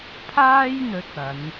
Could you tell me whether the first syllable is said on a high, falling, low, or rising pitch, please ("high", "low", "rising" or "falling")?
high